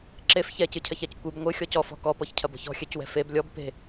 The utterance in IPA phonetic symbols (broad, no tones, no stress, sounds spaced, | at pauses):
ǁ e f ç ɛ c ɨ cʰ ɐ ç a c kʷ ɨ b ŋʷ ɨ xʲ ɔ c ɔ f ɔ̤ k ɔ p ɔ ç cʰ ɐ b ɔ̤ ç ɔ̤ xʲ ɛ c w ɛ̤ f e b lʲ ɔ b p e̤